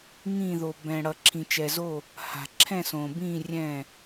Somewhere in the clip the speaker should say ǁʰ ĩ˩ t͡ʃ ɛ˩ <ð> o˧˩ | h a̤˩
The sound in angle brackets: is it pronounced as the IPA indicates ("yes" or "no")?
no